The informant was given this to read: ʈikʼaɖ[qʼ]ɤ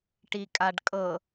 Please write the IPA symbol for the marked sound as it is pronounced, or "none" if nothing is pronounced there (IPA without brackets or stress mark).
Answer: kʼ